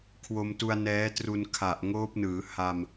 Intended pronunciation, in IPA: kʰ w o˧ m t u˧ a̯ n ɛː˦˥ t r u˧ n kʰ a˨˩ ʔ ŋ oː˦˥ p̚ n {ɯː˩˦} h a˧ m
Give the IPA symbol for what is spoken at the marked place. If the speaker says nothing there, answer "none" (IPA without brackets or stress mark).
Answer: ɯː˩˦